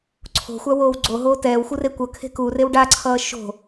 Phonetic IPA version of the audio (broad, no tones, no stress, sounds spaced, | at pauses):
ǀʰ o̤ xʷ a w oː w ɡ͡ǀ o ɦ oː t ɛː w xʷ ɯ r e kʷ ʌ kʰ e̤ k u r e w ɖ a ǀʰ ʌː ʃ o̤